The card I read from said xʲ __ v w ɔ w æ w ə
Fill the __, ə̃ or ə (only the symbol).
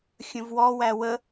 ə̃